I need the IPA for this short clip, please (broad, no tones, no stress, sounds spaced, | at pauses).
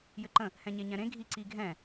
j ɘ ǃ ə̃ | h ɛ̃ ɲ e ɲ ɛ̃ ɾ ẽ ɡʱ i ǀ i ɡʱ ɛ̃